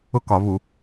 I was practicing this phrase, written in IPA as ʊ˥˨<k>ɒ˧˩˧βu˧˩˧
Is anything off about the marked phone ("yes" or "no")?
no